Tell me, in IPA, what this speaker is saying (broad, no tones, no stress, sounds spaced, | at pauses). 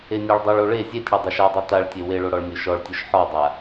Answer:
e nʲ a ɭ dˤ ɵ ɭ o ɭ e zʲ e tʲ ɽ ɔ dˤ o ʃ a dˤ o t a ɭ tʲ e w e ɭ o ɽ ɔ ɭ nʲ o ʃ ɔ ɭ tʲ o ʃ ħ ɔ dˤ a